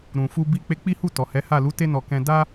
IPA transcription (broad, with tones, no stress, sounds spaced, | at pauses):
ɾ ũ˨ f u˧ b i˧ k͡p e˧ k͡p i˦ h u˦˨ t ɔ˨ h ɛ˨˦ h a˦˨ l u˨˦ t e˧ n ɔ˨ k ɛ̃˧ d a˦